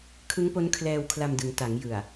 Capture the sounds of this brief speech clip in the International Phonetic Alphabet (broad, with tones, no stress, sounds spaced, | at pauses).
kʰ ɯ˦˥ ŋ p o˦˥ n kʰ l ɛː˧ w kʰ l a˧ m d ɯ˩˦ ŋ t a˩˦ ŋ j ɯ˨˩ a̯